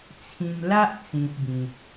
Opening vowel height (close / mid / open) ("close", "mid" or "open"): close